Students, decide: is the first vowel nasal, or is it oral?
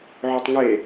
oral